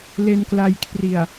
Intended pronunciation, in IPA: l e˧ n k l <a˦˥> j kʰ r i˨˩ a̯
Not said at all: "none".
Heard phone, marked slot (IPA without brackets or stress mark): a˧